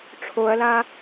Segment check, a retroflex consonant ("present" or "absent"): present